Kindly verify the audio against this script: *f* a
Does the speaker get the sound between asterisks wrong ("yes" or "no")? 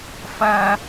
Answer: no